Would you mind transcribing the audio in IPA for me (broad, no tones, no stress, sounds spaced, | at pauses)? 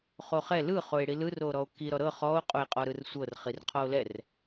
χ o χ ɛ l ɯ χ o e̯ ɽ i l ɯ r o ɾ ɔ o̯ k i ɾ ɔ ɾ ɤ χ ɔ o̯ qʼ o e̯ qʼ ɔ ɾ ɯ r sʷ ɤ r χ i r qʰ ɔ o̯ l ɛ r